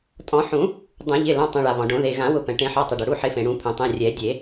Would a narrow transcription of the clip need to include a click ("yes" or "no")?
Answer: no